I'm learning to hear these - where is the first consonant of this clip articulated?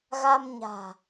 velum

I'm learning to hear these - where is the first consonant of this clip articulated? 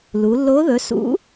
tongue tip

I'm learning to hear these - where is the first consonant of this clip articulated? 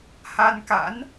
throat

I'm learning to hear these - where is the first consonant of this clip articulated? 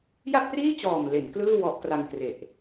palate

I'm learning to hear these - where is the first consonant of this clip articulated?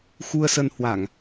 velum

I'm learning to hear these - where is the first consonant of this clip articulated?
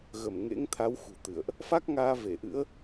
velum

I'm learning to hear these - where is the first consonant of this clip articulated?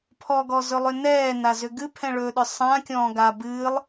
lips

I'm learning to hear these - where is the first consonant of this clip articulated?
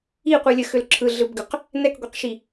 uvula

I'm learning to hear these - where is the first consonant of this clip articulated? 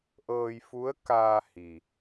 throat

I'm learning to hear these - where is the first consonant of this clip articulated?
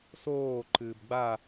tongue tip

